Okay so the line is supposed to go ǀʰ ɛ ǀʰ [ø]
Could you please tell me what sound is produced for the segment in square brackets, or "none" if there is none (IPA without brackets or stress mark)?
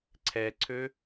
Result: ø